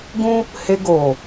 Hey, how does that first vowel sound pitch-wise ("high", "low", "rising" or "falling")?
high